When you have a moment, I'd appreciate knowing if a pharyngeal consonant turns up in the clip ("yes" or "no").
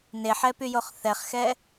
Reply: yes